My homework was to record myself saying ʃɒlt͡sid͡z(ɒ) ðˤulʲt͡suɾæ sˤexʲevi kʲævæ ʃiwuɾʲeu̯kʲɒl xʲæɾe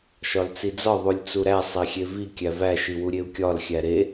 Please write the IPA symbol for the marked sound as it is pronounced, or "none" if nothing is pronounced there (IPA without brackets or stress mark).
ɒ